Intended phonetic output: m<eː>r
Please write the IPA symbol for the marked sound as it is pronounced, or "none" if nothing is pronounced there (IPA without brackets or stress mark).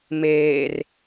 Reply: eː